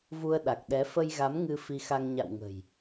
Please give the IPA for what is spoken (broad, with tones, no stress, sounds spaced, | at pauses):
v u˧ ə̯ ɗ a˨˩ k̚ ɗ ɛ˨˦ f ə˧ j ɣ a˨˦ m ŋ ɨ˧ f i˧ x a˧ ŋ ɲ a̰˧˨ w ŋ ə̤˨˩ j